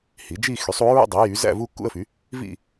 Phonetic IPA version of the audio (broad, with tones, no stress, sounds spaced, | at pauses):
h i˩˥ d͡ʒ i˥˧ x y˩˥ sˤ u˩˥ ɹ ṵ˥˧ dˤ i˩˥ j y˩˥ z æ̰˥˧ v u˥˧ kː ṵ˥˧ ə̯ f y˩˥ | v ḭ˥˧